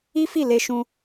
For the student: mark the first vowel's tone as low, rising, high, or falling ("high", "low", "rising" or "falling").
high